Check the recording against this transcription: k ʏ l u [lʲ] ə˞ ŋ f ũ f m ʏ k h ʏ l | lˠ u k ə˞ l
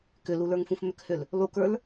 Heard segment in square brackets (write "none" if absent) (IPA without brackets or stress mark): l